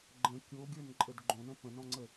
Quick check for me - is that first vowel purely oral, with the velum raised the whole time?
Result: no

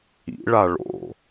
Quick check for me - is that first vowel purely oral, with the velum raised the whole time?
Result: yes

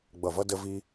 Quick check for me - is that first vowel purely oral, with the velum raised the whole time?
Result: yes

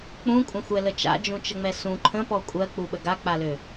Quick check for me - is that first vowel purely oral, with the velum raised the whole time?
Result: no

